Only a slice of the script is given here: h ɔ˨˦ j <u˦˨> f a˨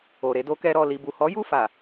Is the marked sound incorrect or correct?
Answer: correct